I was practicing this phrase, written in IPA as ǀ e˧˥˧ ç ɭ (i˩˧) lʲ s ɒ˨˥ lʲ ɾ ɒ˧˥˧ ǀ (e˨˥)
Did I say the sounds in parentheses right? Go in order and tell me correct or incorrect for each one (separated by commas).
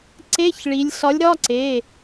correct, incorrect